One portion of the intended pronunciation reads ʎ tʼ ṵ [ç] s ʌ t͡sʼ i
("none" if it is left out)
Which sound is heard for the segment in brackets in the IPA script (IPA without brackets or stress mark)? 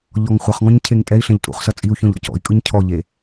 χ